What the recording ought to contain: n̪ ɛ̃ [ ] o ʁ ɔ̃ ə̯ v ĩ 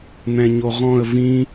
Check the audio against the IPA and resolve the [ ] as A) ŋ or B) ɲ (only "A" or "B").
B